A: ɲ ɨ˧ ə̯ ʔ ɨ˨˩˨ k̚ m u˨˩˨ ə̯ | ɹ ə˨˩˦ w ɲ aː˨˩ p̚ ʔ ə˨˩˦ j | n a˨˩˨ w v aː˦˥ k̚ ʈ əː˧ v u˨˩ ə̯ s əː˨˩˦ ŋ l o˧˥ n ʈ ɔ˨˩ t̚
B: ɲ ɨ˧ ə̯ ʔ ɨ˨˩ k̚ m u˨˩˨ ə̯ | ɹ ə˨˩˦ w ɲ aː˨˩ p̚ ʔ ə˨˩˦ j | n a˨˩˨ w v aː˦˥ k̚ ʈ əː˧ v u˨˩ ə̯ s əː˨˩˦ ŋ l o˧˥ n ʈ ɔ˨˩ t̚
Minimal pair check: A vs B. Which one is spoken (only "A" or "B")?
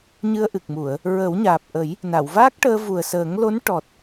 B